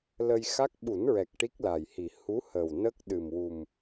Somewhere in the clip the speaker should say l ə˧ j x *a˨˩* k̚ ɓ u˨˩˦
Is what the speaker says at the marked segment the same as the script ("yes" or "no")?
no